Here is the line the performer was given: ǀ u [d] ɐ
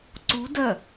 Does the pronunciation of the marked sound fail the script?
no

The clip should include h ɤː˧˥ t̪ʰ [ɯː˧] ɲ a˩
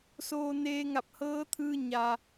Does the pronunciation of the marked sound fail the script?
no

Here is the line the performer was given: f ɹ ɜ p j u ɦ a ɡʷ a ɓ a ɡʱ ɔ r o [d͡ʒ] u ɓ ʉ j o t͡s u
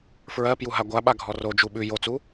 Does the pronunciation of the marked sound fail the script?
no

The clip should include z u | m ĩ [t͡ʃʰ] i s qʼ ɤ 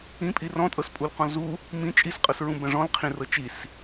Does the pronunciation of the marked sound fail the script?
yes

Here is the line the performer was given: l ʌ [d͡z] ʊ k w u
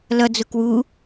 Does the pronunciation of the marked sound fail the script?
no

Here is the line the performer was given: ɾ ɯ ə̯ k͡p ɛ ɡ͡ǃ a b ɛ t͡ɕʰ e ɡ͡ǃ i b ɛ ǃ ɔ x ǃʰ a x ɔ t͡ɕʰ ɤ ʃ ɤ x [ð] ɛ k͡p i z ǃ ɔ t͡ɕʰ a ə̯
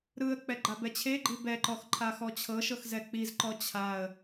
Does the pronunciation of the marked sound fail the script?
yes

